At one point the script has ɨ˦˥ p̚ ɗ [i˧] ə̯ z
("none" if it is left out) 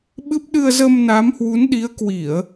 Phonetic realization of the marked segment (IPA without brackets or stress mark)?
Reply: ɨ˧